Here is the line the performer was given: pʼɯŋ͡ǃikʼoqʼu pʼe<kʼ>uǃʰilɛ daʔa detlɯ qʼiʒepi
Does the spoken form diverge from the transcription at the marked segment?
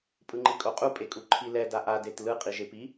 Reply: no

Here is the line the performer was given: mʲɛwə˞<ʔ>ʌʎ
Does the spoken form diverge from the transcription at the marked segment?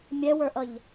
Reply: no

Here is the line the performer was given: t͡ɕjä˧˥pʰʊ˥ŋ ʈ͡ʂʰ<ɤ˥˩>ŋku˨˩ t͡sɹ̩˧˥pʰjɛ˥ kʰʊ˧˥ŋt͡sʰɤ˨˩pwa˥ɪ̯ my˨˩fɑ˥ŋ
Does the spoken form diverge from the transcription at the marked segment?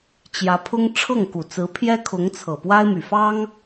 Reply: no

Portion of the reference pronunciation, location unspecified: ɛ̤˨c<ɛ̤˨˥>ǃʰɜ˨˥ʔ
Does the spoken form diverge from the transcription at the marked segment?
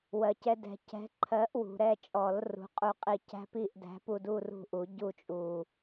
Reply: no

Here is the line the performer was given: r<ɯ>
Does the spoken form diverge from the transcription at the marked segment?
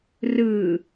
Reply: no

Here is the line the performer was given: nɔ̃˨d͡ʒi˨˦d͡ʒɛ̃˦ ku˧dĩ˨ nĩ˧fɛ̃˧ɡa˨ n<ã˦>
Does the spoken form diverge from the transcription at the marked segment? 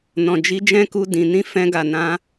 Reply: yes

